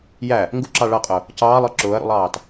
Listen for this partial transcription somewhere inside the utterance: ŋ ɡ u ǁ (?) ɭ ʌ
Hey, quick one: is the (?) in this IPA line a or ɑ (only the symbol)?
ɑ